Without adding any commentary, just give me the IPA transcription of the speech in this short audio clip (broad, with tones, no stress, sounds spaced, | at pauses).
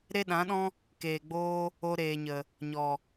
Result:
ɾ e˦ ɗ ã˨˦ ɗ ɔ̃˦ | k eː˨ ɡ͡b oː˦ | o˧ ɾ eː˨ ɲ ə˨ | ɲ ɔ˨